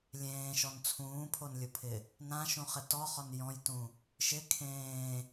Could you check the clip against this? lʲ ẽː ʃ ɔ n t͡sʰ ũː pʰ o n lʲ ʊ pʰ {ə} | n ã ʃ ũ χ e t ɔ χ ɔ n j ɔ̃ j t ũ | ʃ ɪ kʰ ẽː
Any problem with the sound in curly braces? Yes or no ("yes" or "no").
yes